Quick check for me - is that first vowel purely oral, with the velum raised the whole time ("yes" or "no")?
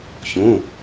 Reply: no